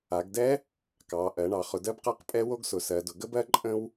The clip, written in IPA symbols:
a˩˧ ɡ d ɛ˦˥ | k ɑ˩˧ ʔ ɜ˩˧ ɳ ɑ˩˧ χ ʊ˩˧ d ɜ˦˥ b q a˦˥ q pʼ ɛ˦˥ w o˦˥ ɡ s ʊ˩˧ s ɜ˩˧ d ʊ˩˧ ɡ ə˦˥ b ɜ˦˥ ǃʼ ə̃˦˥ w

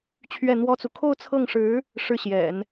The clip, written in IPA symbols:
t͡ɕʰ ɥ ɛ˥˩ n̪ w ɔ˥ t͡s u˨ kʰ o˥˧ ʊ̯ t͡sʰ ɤ˥˩ ŋ ʂ ɻ̩˧˥ | ʂ ɻ̩˥˩ ɕ j ɛ̰˨˩˦ n

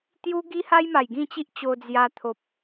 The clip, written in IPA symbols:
t̪ j u˦ ɡ i˦ h a˦ j m a˨˩ j ɡ ĩ˥˧ t͡ɕ i˦ ʔ t͡ɕ o˧ d͡z j a˧ t̪ʰ o˨ p̚

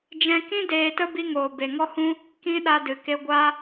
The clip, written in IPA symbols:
d͡ʒ ɛ̃˧ k ĩ˦ d eː˧ t ə˦ b i˧ ŋ oː˨ b e˨ ŋ ɔ˦ h ũ˦ | k ĩ˦ ɗ a˧ d ɨ˨ k e˧ ɡʷ a˧

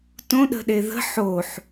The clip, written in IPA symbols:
t õ ɗ ə̤ ɗ e ð ə̤ ħ o ħ

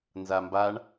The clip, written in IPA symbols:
n z a m b a ɳ

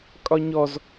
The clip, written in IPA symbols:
kʼ ɒ ɲ ɔ z

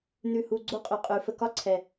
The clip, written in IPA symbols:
n ʉ˨ h u˨ ɡ͡ǀ o˦ qʼ ʉ˨ qʼ ʉ˨ f ə˨ k ɒ˦ ǀʰ ɛ˨

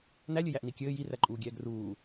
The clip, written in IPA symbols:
n æ lʲ ɘ j æ ʔ n i kʲ ɘː j i r æ ǃʼ uː ɡʲ ɛː ɡ r uː

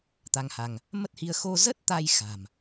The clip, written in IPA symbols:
t̪ a˧ ŋ h a˧ ŋ | m ə˦˥ t̚ h i˧ ə̯ x o˧ z ə˦˥ t̚ t̪ a˧ j x a̤˨˩ m

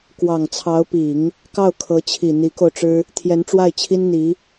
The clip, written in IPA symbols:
k w ɑ˨˩ ŋ t͡sʰ ɑ˧˥ ʊ̯ p i˨˩˦ ŋ | k ɑ˥˩ ʊ̯ kʰ ɤ˧˥ t͡ɕʰ i˨˩ n̪ i˧˥ k o˧ ʊ̯ ʈ͡ʂ ɻ̩˥ | t̪ʰ j ɛ˧˥ n ʈ͡ʂ w a˥˩ ɪ̯ t͡ɕʰ i˥ n n̪ i˧˥

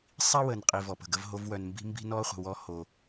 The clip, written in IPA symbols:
sˤ i˦ w ə˨ n qʼ i˨ v ɔ˨ p ə̤˨ ɡ ə˦ v ɦ o˦ v w œ˨ n m b i̤˦ m b i̤˦ n ɔ˦ χʷ ə̤˨ w ɔ˦ h o˦

